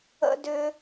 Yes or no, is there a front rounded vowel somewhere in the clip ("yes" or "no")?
yes